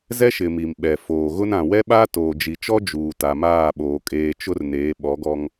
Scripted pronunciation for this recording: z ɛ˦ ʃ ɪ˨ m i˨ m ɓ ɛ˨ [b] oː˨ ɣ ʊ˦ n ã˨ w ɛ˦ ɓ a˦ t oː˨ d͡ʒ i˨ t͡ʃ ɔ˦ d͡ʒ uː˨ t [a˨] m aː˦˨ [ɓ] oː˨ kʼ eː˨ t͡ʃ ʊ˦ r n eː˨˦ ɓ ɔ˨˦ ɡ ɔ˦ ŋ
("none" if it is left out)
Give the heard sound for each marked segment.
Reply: f, a˨, ɓ

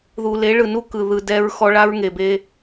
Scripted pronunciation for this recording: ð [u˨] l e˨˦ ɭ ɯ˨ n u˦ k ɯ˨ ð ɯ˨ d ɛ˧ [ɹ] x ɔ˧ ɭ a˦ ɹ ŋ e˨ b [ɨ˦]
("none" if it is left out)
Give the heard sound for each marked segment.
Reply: u˨, ɹ, e˦

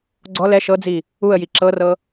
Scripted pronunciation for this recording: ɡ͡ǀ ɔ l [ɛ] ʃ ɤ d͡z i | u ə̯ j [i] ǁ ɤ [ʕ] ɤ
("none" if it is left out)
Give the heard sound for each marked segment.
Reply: ɛ, i, r

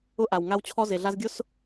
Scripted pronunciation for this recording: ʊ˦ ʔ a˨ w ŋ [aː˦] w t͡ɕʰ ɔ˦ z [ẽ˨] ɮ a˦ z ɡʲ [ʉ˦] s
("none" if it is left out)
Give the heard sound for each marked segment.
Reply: a˦, e˨, ʊ˦

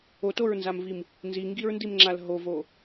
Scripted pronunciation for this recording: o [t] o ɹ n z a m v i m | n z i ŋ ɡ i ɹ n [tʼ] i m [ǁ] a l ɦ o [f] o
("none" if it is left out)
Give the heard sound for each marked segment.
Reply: t, d, ŋ͡ǁ, v

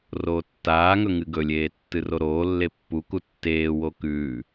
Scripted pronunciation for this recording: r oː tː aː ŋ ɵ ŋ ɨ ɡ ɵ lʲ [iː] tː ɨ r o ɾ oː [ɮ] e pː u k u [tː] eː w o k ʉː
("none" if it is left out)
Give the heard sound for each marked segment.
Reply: eː, lː, tː

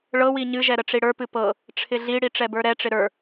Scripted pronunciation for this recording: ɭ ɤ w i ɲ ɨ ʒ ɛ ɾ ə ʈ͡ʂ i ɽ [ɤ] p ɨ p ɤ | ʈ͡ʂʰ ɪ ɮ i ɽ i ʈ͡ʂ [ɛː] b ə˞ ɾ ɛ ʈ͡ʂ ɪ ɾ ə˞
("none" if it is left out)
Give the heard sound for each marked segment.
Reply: ə˞, ɛ

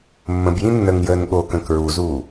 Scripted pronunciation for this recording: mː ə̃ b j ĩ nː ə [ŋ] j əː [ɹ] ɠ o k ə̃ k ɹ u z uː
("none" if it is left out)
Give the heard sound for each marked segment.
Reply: ŋ, n

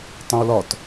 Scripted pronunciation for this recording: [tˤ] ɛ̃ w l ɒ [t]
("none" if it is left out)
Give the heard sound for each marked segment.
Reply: tˤ, t

